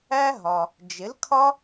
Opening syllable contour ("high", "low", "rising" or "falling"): high